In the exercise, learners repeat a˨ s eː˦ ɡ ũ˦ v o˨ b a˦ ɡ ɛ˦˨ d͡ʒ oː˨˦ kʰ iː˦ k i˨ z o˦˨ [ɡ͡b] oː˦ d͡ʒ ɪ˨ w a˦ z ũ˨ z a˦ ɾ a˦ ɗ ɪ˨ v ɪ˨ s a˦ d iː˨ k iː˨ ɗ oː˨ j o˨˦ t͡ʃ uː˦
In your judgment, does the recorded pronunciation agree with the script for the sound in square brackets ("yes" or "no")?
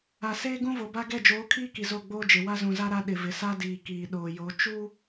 yes